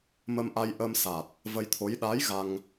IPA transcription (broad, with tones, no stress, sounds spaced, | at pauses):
m ə˧ m ʔ a˧ j ʔ ə˧ m s a˨˩ t̚ | v ə˧ j t̪ʰ o˧˥ j ɗ a˧˥ j ɣ a˧ ŋ